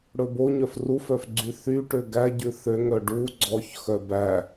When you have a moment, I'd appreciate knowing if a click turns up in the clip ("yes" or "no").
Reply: yes